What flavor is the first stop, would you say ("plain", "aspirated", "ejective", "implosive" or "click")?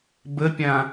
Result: plain